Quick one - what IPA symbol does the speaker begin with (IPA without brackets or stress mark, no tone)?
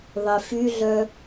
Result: ðˤ